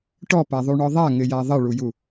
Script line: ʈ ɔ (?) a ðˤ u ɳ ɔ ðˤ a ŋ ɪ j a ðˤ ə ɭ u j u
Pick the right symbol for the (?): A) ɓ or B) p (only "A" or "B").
B